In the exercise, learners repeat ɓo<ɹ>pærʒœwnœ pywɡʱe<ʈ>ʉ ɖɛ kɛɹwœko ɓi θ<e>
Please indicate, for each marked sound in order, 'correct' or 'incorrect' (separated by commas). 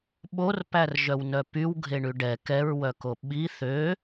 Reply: incorrect, incorrect, incorrect